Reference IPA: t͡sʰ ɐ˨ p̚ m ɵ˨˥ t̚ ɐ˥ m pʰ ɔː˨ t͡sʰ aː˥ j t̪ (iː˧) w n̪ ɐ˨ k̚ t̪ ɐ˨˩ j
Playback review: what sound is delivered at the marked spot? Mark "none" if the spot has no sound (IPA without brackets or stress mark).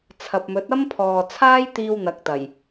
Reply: iː˧